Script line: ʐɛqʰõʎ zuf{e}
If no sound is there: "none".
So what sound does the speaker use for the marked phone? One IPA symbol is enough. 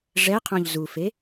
e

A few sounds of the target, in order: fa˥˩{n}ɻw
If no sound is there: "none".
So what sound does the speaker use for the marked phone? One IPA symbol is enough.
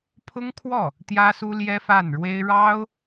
n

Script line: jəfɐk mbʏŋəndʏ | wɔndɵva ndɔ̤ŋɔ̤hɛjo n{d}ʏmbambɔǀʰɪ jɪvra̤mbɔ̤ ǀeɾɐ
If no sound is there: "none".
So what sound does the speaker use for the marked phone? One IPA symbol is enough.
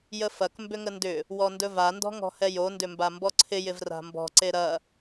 d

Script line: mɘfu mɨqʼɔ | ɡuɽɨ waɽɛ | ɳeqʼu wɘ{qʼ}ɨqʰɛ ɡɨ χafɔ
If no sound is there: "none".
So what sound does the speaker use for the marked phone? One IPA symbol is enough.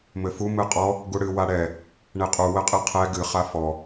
qʼ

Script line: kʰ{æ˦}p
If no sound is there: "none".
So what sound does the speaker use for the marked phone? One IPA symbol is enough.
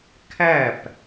æ˦˨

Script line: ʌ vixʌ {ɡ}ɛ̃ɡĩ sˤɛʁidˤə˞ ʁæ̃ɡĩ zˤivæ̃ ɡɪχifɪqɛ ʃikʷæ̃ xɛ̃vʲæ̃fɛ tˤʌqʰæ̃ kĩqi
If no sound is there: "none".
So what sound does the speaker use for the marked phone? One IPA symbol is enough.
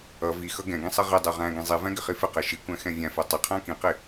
ɡ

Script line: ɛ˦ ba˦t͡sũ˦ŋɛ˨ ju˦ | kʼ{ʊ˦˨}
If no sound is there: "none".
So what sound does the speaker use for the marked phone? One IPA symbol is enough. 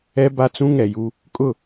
ʊ˦˨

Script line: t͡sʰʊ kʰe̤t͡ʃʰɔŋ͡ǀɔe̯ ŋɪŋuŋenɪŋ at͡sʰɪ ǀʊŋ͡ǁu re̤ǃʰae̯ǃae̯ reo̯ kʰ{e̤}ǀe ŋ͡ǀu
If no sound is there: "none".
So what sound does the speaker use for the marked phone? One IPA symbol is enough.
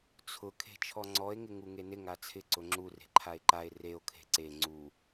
e̤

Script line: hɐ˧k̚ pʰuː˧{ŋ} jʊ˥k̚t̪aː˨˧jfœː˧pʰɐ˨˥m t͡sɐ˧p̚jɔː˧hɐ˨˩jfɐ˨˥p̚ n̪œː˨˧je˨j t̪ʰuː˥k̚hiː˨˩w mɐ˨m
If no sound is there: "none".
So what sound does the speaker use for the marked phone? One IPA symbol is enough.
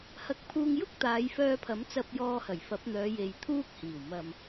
ŋ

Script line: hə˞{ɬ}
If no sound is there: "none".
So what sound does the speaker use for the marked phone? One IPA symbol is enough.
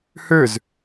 z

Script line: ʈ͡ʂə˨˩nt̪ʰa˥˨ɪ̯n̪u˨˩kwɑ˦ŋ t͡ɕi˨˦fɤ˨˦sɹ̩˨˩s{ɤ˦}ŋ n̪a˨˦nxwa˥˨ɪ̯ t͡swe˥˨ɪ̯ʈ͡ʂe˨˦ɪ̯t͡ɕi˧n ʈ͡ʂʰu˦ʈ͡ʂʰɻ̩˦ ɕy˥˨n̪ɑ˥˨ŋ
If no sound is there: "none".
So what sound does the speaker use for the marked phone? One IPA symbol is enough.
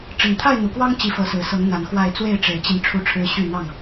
ɤ˨˦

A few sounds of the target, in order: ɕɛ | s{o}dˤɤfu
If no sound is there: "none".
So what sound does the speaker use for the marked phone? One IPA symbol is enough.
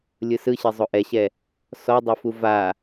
ɔ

